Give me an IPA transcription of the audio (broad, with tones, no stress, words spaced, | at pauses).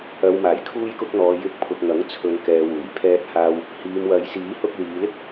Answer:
ɐ˨wmaː˨˩j kʰuː˧jkʊ˧k̚n̪ɔː˨ jɪ˧k̚pʰʊ˨k̚ŋɐ˨˥ŋ t͡sʰɵ˨˧n kɛː˨wuː˨˩j pʰɛː˧t̚haː˧w | hiː˨mwɐ˨˧jsiː˨˥hʊ˧k̚ liː˨˧lɪ˥k̚